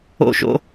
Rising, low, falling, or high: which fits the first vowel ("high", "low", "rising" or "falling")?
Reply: high